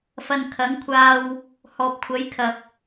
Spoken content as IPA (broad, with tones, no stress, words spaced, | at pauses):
fɐ˧n kʰɐ˨˥ŋkʷʰaː˧w | hɔː˨p̚kʷʰɐ˨˥jkʰɐ˨p̚